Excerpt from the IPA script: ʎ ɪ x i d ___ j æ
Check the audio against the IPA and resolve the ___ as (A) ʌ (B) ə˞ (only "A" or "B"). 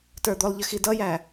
A